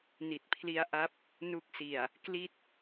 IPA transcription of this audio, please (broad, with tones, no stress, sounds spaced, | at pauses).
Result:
n i˨˩ t̚ pʰ l i˦˥ a̯ ʔ a˦˥ p̚ | n u˦˥ k̚ s i˨˩ a̯ | k l i˥˩ t̚